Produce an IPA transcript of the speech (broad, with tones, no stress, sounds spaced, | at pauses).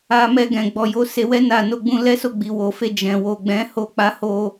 a˧ m ɛ˧ ɡ ɛ̃˨ ɡ͡b ɔ˨ j o˨˦ s e˧ w ɛ˦ n a˦˨ n o˧ ɡ͡b ũ˧ l ɛ˦ s o˦˨ ɡ͡b i˨ w o˨ f e˧ d͡ʒ ɛ̃˨ w o˨ ɡ͡b ɛ̃˨˦ h o˧ k͡p a˧ h o˧